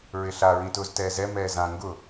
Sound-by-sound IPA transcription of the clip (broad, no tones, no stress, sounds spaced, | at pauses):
ɹ ɪ ɬ a ɹ ĩ t ʊː z t ɛː z ɛ m ɛː z ã ŋ ɡ ʊ